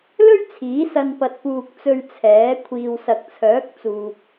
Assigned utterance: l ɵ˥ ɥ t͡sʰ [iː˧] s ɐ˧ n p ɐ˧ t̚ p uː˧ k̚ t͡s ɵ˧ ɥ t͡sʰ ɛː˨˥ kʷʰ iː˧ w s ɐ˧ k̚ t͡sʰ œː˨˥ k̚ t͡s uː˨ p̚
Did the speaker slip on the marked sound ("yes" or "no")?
yes